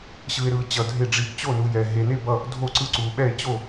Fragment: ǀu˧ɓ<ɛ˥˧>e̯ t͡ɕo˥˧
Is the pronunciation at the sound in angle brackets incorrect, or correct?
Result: correct